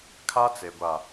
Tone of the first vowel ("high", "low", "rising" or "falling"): high